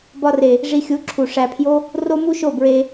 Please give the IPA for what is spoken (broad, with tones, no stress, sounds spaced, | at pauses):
b ɒ˧ r e˨ | ʐ i˧ xʲ u˨˦ ǁʰ u˨ ʂ æ˨ pʰ j o˦ | r o˦ m u˦ ʃ o˦˨ b ɹ e˧